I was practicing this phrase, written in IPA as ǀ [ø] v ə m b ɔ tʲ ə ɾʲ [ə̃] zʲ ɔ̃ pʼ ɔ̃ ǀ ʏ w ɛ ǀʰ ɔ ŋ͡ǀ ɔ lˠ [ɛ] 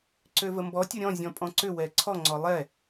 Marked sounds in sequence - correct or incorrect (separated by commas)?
correct, incorrect, correct